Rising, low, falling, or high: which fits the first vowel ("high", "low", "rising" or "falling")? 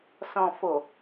low